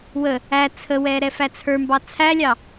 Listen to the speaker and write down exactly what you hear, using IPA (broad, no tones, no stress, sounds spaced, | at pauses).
w ə | æ t͡sʰ ə w ɛ ɾ ɛ f æ t͡sʰ ə˞ m b ɑ t͡sʰ æ lʲ ɑ